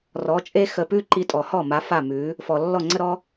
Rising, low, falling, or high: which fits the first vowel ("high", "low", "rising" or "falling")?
rising